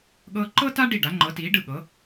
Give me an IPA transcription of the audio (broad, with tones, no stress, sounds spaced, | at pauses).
ɠ ɤː˥ ǃ ɤ˥ t a˥ ɖ i˥˩ ɖ a˩˥ ŋ͡ǃ ɤ˩˥ t iː˩˥ ɖ ɯ˥˩ ɠ ɤ˩˥